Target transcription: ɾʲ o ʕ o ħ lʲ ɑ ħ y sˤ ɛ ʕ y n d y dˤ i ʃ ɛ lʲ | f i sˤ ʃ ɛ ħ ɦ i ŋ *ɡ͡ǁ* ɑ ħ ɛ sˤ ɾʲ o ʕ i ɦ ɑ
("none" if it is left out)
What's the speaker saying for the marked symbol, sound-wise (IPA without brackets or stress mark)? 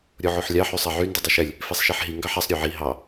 ɡ